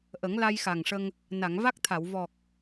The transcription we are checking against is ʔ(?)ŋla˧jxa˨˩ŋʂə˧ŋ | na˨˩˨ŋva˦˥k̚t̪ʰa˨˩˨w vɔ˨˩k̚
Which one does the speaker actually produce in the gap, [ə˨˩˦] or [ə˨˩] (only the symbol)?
ə˨˩˦